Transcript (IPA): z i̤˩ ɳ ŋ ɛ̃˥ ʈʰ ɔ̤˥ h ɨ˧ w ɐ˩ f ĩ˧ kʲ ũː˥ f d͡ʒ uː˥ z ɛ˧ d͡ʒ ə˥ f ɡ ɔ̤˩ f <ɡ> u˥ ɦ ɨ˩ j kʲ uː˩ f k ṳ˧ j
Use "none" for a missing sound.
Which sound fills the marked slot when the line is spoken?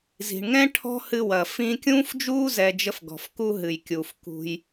k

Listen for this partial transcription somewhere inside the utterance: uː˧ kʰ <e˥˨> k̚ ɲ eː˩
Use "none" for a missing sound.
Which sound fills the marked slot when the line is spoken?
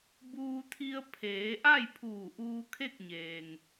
e˥˨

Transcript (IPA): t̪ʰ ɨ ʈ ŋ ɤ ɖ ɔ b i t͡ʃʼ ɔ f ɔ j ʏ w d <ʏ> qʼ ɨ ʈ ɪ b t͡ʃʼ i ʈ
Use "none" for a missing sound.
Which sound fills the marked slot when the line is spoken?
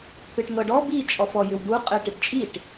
u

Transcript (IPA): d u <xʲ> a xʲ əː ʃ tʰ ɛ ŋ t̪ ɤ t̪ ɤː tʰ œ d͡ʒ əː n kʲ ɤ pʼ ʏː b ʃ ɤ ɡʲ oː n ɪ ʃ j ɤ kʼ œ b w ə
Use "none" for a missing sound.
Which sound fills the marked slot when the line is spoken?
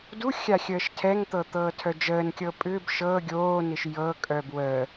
xʲ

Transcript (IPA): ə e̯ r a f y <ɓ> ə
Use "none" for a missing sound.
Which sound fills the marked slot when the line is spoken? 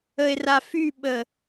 ɓ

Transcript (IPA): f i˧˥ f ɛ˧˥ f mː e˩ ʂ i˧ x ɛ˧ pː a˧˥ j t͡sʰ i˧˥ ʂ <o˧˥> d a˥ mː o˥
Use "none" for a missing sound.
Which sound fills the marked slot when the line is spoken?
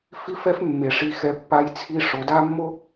o˩˧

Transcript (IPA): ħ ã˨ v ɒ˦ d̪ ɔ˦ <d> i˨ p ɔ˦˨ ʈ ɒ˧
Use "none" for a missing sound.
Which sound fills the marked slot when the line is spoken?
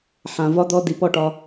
d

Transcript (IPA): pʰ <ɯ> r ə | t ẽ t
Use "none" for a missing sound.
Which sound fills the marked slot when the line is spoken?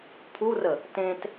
u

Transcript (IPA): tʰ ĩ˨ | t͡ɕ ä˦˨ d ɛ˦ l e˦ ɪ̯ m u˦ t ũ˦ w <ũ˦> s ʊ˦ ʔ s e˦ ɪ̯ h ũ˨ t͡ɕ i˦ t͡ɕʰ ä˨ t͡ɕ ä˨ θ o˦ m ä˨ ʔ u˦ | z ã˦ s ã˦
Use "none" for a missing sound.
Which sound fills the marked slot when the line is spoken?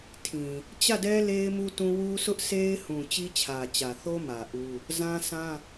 u˦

